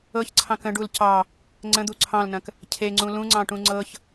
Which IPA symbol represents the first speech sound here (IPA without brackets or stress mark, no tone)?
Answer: ɤ